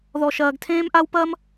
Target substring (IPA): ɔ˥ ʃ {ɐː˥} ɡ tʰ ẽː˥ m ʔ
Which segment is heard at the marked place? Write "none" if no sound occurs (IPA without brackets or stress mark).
ɐː˥